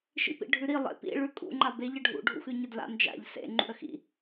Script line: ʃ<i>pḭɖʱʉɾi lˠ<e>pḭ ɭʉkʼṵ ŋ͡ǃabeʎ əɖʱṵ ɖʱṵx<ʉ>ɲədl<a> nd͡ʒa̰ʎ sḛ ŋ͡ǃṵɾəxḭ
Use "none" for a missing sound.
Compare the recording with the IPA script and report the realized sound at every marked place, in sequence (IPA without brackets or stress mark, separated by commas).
ḭ, ḛ, ʉ, a̰